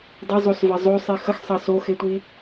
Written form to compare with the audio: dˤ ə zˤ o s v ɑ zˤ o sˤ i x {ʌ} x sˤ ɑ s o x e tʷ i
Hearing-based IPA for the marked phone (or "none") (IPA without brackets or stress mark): ə